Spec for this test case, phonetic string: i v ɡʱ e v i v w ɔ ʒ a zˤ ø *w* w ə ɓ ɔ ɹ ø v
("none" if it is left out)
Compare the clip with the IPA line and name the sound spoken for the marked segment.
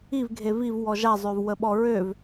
v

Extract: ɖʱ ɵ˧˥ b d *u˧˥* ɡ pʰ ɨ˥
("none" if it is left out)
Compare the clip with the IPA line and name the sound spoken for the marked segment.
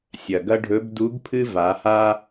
u˧˥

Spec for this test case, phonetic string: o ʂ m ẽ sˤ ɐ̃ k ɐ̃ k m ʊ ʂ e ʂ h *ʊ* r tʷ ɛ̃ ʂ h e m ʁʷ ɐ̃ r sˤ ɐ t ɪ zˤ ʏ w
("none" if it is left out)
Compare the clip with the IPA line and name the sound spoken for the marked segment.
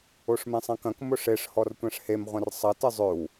ɔ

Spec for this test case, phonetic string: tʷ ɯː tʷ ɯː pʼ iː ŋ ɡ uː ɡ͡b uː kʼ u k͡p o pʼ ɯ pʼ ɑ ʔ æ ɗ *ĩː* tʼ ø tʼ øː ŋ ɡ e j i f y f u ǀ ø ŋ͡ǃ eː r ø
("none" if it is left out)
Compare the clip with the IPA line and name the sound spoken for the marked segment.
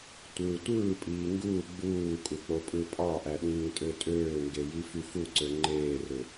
ĩː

